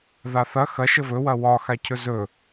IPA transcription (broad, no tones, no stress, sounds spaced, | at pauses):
ð a θ ɐ x ɐ ʃ ə v ɵ w ɐ w ɒ x a cʰ ɵ z ɵ